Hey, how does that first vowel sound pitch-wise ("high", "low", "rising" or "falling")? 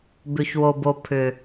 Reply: low